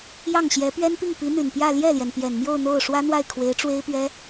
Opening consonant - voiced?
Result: yes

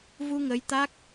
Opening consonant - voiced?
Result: yes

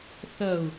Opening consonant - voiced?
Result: no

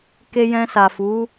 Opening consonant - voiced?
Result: no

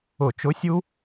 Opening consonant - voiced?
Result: no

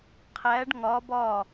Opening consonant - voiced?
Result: no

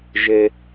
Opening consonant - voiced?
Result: yes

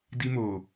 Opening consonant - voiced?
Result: yes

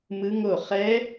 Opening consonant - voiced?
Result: yes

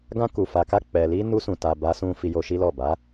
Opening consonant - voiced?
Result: yes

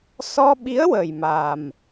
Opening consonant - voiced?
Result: no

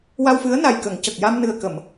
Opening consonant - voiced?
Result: yes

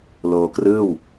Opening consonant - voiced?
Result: yes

